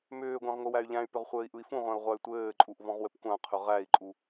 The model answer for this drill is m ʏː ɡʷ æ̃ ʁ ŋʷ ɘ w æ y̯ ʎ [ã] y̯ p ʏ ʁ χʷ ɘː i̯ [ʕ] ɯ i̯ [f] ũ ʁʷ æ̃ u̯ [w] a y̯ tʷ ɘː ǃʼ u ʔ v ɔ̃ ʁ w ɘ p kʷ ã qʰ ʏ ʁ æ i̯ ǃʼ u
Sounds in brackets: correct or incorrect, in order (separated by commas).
incorrect, incorrect, correct, incorrect